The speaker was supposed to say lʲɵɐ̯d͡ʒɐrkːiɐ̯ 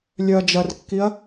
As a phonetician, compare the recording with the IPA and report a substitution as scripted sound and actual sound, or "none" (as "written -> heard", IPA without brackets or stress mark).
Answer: ɵ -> œ